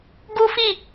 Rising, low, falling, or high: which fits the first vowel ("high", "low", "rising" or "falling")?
high